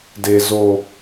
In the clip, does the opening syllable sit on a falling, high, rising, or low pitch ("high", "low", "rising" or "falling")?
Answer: high